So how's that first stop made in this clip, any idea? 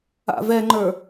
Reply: click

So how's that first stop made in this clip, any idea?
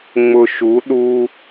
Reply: implosive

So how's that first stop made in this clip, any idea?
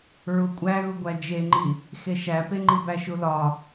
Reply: ejective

